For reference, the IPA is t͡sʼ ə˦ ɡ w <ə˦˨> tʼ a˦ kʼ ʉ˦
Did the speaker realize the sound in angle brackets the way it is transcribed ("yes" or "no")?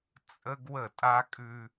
yes